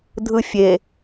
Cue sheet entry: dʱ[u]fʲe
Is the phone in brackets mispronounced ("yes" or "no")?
yes